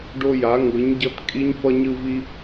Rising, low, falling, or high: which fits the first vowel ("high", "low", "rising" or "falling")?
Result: high